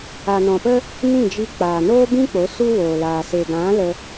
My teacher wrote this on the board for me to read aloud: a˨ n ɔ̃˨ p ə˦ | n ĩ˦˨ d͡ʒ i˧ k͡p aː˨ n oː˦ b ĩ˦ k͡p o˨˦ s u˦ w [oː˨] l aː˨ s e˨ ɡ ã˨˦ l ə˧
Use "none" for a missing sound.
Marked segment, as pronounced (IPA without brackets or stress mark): oː˨